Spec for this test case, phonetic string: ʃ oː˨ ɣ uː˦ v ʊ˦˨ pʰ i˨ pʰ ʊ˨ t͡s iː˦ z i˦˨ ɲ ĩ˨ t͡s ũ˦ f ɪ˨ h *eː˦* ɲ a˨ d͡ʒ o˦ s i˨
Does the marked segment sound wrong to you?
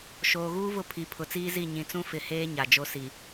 no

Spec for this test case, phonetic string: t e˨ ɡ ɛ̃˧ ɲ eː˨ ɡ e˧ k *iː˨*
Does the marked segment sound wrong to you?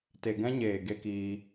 yes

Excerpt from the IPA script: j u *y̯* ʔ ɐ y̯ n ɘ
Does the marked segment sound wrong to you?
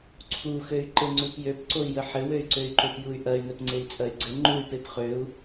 no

